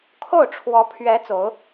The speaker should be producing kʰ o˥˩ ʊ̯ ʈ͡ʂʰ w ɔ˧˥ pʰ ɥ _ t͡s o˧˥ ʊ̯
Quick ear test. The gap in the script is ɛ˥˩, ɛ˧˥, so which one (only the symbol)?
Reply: ɛ˧˥